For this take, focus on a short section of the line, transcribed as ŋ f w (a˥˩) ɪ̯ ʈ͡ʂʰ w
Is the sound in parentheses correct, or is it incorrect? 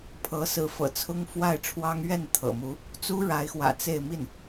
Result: correct